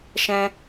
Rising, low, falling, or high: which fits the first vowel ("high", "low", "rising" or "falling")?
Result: high